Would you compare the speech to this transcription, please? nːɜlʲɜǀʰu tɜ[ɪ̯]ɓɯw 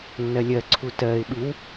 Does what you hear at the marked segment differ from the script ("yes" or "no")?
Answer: no